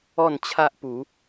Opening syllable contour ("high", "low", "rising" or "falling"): falling